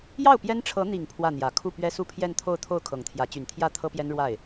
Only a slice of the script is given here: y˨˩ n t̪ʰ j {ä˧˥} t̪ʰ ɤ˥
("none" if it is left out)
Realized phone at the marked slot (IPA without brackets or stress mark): ä˥˩